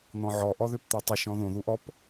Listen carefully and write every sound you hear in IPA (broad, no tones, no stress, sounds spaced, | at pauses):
n̪ ɔ̃ ʕ ɔ ʔ ɔ ð ø p t̪ ø tˤ ə ʃ ɔ̃ ð õ ð u ʔ ɔ p